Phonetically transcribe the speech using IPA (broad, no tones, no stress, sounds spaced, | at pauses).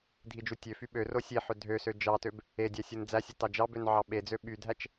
dʱ i d͡ʒ u tʲ ø f y ɓ ø r o sʲ e ħ ø dʱ ø s ø d͡ʒ ɑ t ø b | e dʲ æ sʲ ɯ n d͡z æ sʲ ɯ t ɑ d͡ʒ ɑ b ø n ʕ ɑ ɓ e d͡z ø ɓ y dʱ æ t͡ʃ